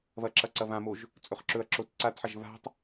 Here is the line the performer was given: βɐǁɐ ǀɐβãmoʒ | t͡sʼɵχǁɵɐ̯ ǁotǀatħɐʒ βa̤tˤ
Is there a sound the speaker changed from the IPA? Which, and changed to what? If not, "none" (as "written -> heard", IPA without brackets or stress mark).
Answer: none